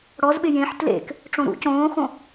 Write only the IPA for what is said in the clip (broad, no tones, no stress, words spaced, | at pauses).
ɽɔzɓɪ jẽħ tlḛk | ʈ͡ʂõɾṵ cõːxõ